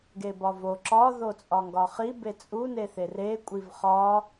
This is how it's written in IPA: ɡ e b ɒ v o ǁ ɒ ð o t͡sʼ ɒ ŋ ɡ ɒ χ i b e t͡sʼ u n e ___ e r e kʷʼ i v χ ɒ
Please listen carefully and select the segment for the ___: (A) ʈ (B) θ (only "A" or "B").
B